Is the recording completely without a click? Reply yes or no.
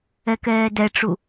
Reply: yes